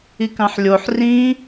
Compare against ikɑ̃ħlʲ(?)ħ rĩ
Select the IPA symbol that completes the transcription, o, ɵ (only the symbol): o